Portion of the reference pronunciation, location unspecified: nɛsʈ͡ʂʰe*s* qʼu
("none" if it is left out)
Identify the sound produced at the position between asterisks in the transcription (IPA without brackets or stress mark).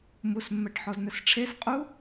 s